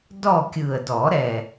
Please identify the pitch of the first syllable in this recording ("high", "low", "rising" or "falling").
falling